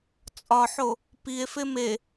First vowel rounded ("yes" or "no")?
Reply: yes